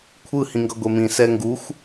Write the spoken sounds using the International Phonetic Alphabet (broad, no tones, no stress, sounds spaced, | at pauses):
kʷʰ ɯ h ĩ ŋ ɡ ʌ ɡʷ e m ĩ s ɛ ŋ ɡ u xʷ